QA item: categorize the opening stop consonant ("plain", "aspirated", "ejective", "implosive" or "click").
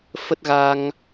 plain